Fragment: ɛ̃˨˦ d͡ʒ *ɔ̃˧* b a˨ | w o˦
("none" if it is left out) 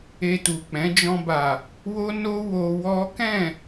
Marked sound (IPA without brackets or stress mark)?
ɔ̃˧